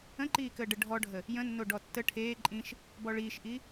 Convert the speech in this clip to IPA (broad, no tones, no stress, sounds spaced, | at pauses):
ə̃ ǃ iː k əː ɖ ə ɖʱ ɔ ɖʱ ə | j ə̃ nː o ɖ ɔ tː ə ʈʰ eː ǃʼ ĩ ʃ | b ɔ ɭ iː ʃ ʔ i